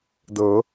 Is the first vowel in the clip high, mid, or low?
mid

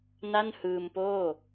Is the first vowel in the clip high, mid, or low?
low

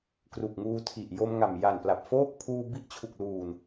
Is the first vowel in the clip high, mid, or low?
high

